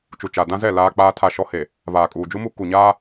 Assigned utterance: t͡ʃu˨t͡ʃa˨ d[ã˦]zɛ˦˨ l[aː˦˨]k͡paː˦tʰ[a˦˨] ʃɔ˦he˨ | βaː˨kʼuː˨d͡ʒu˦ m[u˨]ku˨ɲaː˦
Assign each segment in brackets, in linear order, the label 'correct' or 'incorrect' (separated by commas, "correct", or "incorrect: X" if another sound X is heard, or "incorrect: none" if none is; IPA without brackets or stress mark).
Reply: correct, incorrect: aː˦, correct, incorrect: u˦